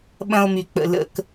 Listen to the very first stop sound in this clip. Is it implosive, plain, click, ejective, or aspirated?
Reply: implosive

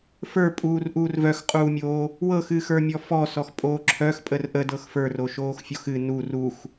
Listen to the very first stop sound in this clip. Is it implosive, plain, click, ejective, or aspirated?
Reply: ejective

